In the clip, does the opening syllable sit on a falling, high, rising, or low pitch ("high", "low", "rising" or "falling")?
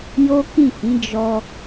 high